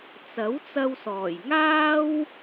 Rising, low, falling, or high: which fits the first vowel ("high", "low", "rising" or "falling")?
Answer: rising